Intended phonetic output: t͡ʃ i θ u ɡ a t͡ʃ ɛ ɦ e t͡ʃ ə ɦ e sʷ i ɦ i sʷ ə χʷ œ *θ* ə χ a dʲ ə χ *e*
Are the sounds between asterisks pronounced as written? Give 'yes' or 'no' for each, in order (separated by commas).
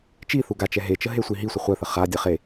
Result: yes, yes